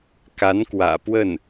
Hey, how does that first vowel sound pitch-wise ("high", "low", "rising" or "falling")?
rising